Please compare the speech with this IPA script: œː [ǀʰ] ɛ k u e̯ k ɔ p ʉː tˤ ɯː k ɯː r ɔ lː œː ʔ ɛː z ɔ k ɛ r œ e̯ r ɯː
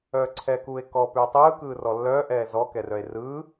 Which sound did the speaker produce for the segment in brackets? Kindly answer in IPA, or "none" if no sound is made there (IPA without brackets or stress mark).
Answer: ǀʰ